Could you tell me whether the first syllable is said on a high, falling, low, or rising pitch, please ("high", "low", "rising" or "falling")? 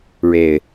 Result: low